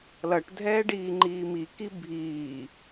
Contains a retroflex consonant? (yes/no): yes